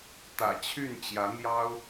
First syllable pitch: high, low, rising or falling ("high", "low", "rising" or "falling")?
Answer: low